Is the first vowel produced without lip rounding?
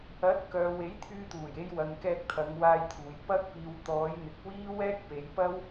yes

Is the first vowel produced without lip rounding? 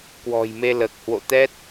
no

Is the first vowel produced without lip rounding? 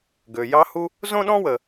no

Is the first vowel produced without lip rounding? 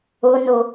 no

